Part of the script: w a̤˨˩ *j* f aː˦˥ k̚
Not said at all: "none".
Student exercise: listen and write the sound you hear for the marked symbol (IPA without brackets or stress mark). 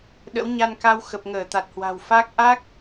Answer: w